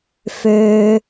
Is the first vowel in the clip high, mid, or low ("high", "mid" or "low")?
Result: mid